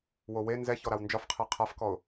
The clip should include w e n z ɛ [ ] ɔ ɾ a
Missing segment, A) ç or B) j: A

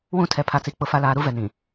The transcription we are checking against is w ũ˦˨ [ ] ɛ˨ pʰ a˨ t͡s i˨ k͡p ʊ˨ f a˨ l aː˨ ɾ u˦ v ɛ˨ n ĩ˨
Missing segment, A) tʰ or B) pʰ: A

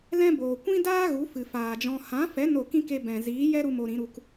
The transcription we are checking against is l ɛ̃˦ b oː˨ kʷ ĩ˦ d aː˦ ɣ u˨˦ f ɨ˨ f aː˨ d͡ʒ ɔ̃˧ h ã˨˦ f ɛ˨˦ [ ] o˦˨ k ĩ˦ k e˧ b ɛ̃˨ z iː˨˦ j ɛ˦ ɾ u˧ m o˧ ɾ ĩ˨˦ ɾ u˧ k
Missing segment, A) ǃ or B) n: B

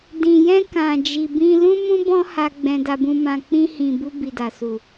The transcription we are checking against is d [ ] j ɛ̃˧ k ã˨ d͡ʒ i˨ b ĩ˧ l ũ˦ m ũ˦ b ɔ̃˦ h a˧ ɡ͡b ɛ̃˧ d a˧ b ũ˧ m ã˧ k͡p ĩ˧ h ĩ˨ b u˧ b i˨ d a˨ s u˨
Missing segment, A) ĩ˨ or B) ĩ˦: A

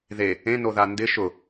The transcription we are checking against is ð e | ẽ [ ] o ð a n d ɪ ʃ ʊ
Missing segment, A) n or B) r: A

